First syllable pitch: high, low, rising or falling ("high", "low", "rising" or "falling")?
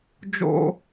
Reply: high